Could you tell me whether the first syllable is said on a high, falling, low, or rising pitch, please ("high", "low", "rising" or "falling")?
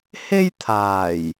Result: high